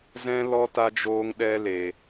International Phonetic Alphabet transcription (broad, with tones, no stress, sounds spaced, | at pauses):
z ɛ̃˦ l ɔ˦ t a˦ d͡ʒ oː˦ ŋ ɗ ɛ˦ l e˧